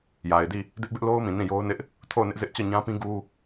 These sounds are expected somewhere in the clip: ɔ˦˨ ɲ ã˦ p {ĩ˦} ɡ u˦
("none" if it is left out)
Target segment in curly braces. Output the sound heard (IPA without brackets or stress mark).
ĩ˦